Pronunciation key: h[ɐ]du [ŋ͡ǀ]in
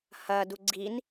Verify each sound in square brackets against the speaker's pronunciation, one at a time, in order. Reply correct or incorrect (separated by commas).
correct, incorrect